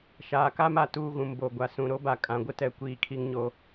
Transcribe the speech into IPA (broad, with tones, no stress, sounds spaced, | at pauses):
ʃ aː˨ k a˦ m a˨ t uː˦ ɣ ũ˨ m b o˨ ɡʷ a˨ s ũ˨ ɾ o˦ b a˨ kʼ ã˨ ɡʷ ɪ˦ t ɛ˨ kʷ iː˨ kʰ i˦ ŋ ɲ o˦